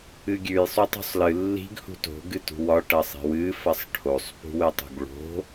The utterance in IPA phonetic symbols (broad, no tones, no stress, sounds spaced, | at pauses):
ɨ ɡʲ ʉ j sˤ u tˤ ṳ sˤ l ɨ lː i̤ ɡ h ṳ t o̤ ɡ ɨ t ṳ w ɒ ʈ ɐ sˤ i̤ w ɨ f ɐ sˤ ʈʰ o sˤ p ṳ w ɨ tˤ ṳ ɡ ɭ o̤